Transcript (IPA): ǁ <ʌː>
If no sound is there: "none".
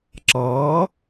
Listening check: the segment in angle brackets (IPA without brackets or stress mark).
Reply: ʌː